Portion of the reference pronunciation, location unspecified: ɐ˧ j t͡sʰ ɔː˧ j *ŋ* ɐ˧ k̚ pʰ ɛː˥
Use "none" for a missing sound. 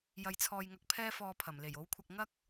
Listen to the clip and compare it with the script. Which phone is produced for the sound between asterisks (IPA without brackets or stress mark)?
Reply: ŋ